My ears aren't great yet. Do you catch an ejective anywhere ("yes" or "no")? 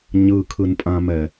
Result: yes